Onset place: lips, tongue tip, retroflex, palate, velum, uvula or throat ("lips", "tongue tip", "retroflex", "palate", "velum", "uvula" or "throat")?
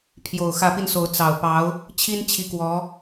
lips